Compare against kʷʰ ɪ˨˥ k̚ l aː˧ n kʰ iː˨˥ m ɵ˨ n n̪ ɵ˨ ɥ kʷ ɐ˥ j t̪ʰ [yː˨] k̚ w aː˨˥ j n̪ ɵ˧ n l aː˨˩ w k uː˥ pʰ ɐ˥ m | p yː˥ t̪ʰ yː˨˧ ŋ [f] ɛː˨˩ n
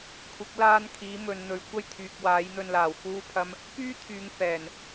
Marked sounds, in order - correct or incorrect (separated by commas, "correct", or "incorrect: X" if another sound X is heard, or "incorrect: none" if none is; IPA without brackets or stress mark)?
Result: correct, correct